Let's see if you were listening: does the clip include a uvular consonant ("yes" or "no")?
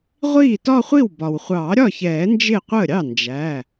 yes